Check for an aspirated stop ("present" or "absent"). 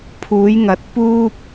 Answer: present